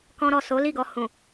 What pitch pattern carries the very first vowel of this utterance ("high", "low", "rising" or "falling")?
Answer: high